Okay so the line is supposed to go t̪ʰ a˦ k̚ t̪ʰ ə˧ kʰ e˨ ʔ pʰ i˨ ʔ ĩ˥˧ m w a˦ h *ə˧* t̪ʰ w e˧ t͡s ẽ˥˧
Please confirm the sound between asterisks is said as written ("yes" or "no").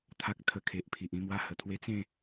no